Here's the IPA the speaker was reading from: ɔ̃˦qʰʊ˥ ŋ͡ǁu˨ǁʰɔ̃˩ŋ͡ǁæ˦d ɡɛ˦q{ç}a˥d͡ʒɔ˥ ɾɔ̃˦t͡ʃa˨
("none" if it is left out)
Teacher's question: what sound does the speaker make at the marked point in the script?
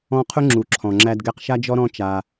ʃ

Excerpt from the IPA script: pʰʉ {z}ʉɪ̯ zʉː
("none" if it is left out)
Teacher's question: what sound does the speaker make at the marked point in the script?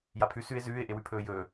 s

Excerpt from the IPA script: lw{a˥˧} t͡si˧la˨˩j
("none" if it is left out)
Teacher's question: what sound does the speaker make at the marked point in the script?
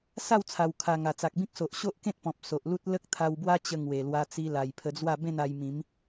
a˧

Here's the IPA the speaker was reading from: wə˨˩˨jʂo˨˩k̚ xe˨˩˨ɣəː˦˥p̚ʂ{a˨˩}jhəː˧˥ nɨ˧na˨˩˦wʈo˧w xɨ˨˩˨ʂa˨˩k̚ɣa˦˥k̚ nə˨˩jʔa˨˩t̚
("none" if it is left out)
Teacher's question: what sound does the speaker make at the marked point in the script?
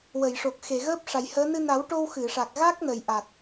a˨˩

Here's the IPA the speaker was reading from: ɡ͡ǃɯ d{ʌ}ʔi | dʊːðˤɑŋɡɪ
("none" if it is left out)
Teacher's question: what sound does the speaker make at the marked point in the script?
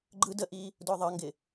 ə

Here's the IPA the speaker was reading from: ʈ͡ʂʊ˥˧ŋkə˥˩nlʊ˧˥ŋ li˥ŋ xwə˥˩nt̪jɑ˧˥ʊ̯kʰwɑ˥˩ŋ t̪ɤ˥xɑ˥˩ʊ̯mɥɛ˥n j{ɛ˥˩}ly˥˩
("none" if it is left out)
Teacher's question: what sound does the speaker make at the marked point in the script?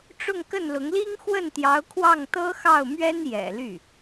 ɛ̰˨˩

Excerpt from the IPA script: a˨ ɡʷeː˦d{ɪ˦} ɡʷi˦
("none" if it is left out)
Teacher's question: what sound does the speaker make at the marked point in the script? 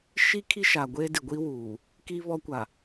ɪ˨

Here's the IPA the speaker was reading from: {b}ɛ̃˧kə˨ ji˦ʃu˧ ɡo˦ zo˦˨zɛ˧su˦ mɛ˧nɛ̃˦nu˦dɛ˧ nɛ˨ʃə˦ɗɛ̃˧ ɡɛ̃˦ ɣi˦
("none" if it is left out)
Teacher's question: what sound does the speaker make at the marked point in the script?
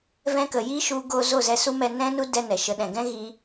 v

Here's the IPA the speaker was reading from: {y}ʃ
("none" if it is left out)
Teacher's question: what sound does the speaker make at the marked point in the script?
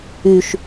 y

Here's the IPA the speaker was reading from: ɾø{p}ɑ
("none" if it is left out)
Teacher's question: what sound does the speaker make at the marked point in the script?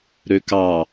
k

